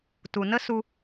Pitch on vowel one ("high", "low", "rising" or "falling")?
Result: low